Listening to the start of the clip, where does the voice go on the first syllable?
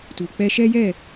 low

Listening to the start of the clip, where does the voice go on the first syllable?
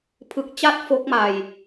low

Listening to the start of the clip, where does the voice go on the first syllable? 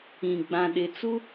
low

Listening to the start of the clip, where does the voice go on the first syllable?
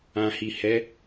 low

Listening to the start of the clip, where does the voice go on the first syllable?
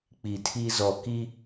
low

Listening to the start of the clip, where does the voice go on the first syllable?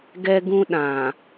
high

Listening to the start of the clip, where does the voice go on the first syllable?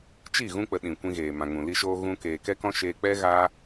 falling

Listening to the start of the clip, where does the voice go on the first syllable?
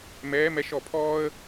rising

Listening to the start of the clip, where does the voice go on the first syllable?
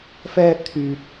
high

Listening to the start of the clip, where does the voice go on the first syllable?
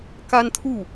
high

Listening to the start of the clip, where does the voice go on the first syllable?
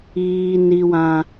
low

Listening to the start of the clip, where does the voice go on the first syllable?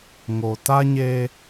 low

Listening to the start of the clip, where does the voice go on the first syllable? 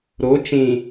rising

